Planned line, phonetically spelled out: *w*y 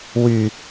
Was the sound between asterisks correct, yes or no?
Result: yes